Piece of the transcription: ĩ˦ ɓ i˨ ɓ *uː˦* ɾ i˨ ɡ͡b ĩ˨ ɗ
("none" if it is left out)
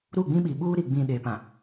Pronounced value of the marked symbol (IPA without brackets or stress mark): uː˦